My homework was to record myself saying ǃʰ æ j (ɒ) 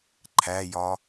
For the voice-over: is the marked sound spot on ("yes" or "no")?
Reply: yes